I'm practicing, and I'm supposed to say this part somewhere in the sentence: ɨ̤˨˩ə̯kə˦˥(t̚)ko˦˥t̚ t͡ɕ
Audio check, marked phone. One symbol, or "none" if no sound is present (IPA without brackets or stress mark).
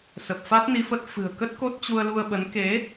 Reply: t̚